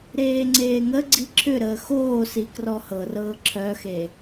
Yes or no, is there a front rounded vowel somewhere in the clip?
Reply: yes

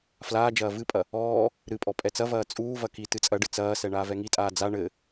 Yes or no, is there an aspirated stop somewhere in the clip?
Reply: no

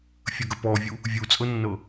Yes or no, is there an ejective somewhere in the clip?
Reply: yes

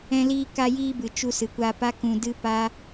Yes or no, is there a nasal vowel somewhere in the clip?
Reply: yes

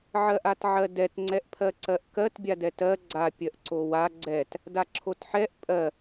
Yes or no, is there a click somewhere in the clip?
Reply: yes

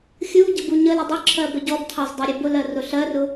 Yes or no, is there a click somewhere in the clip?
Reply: yes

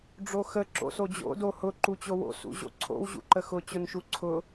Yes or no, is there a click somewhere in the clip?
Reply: yes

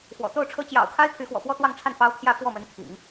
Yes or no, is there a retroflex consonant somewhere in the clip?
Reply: yes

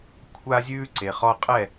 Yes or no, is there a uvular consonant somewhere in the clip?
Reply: yes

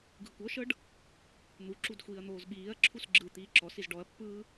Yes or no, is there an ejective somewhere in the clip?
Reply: no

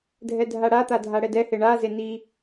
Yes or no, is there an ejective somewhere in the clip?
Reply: no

